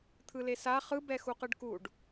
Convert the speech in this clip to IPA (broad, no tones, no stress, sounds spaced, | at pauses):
t̪ʰ ɯ l e s a χ ɯ b ɛ x u q ɯ ɖ k u ɖ